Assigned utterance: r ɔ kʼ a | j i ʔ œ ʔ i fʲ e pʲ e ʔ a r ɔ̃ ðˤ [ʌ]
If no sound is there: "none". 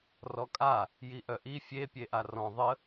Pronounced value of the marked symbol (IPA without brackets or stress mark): ə